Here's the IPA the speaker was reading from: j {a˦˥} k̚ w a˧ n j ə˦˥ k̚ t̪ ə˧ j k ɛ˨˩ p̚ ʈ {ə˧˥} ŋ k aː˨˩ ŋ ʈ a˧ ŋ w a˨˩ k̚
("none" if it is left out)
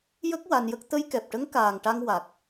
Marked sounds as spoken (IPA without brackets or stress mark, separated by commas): ə˦˥, ə˧˥